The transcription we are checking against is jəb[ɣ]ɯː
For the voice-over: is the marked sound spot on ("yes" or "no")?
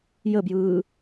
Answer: no